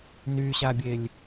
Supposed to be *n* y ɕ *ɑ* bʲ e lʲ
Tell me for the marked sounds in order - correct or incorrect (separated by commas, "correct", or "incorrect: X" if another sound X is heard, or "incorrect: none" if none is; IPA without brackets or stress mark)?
correct, incorrect: a